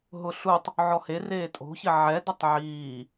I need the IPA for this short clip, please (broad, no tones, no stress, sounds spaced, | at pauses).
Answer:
ɦ ʊ ɬ u tˤ | ʕ ɔ h e r eː tʼ o̤ ç ɪ ʕ ɛ d ɪ tˤ ʕ iː